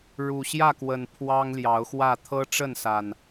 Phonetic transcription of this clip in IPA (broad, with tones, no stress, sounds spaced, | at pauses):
ɻ u˨˩ ɕ j ä˥˨ k w ə˨˩ n pʰ w ɑ˦ ŋ l j ɑ˨˦ ʊ̯ x w ä˥˨ t̪ʰ ɤ˦ ʈ͡ʂ ə˥˨ n s a˨˩ n